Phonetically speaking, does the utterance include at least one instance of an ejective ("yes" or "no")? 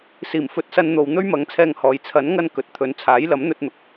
no